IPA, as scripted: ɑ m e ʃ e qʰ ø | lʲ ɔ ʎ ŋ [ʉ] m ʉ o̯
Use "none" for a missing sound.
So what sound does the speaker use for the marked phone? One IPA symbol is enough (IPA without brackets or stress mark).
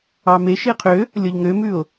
ø